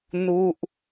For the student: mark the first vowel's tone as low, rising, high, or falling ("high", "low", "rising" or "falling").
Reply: falling